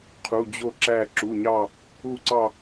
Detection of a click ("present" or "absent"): present